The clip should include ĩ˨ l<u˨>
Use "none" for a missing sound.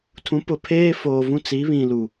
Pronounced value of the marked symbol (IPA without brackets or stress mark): u˨